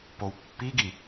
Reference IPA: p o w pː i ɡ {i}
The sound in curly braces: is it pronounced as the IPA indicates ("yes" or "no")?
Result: yes